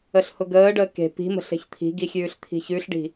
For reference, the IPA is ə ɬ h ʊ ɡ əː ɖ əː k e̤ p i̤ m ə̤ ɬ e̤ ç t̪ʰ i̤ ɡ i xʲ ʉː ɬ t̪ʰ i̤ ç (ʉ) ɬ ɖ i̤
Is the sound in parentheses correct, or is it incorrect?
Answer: correct